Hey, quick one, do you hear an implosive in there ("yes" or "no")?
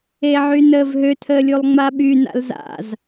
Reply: yes